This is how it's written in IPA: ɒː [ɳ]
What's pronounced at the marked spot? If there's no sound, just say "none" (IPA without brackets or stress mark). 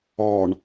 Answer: ɳ